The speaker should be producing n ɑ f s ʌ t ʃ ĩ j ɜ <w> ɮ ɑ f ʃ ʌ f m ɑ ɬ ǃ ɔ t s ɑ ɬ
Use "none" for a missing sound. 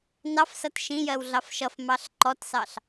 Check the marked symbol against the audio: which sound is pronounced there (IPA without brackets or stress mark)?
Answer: w